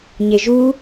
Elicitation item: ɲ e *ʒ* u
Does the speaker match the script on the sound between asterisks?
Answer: yes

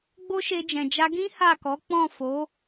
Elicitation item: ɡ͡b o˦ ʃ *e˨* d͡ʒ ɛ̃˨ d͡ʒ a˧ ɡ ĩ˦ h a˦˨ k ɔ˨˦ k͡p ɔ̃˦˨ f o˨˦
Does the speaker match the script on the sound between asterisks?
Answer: no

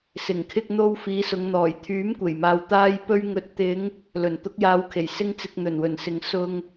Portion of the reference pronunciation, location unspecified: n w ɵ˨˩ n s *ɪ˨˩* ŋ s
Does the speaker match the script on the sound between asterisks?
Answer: no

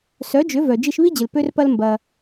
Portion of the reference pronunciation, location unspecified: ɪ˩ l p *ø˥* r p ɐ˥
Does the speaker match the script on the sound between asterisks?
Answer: yes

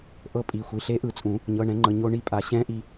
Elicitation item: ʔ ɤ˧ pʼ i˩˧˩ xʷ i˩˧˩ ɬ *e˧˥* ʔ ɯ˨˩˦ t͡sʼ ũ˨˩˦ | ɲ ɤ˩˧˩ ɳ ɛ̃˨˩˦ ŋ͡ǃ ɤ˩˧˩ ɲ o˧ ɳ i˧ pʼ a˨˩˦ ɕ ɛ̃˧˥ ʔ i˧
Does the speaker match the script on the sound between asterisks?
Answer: yes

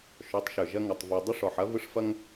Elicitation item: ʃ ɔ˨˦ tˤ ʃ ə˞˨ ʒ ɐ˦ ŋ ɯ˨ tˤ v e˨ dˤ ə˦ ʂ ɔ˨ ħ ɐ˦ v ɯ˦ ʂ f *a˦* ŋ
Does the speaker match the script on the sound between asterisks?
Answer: no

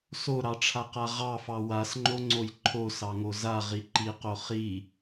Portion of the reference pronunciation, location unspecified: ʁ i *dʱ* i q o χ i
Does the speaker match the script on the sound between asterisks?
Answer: no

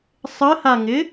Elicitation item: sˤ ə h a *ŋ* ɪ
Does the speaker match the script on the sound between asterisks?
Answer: yes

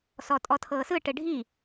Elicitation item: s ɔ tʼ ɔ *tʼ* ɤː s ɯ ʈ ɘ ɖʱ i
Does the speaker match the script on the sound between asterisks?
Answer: no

